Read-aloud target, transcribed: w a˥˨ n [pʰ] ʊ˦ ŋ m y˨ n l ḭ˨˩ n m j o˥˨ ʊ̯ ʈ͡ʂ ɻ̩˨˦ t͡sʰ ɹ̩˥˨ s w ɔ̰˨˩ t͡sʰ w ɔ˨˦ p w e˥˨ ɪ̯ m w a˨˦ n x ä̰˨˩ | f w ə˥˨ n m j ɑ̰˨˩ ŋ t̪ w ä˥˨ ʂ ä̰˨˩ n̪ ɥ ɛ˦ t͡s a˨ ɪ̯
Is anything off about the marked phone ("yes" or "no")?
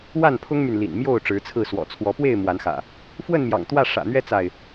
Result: no